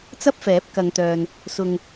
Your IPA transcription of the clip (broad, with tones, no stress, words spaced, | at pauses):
t͡sɐ˥p̚fɛː˨˥p̚kɐ˨˧ŋt̪œː˨n | sʊ˨ŋ